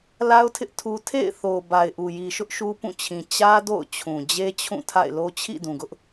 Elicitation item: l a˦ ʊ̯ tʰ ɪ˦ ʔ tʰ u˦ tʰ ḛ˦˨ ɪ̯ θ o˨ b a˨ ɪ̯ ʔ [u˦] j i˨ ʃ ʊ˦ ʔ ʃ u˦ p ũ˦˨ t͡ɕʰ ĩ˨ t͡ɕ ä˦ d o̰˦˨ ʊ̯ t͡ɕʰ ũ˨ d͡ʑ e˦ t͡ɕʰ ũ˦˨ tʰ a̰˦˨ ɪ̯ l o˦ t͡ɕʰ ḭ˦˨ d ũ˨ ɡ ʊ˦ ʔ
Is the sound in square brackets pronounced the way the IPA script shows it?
no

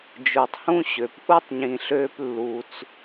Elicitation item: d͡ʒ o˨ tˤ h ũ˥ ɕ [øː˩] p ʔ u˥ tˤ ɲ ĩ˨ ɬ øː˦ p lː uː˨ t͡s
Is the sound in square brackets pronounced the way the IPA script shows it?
no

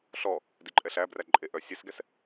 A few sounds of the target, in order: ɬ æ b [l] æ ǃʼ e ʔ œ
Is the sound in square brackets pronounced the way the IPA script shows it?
no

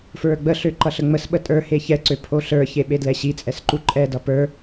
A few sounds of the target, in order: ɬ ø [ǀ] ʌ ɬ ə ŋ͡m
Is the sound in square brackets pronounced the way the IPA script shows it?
no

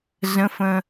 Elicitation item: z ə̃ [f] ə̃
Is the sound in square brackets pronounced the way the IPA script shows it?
yes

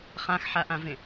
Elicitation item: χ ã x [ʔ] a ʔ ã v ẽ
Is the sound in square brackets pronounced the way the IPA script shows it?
no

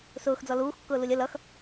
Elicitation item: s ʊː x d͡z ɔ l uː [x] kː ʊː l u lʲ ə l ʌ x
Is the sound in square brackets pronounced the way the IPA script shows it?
yes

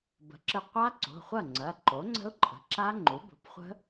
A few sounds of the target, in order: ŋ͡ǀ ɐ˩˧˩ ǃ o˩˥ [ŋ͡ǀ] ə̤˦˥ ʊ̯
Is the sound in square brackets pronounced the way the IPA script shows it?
yes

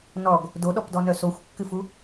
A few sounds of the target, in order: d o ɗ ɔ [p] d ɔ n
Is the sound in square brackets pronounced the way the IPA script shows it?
yes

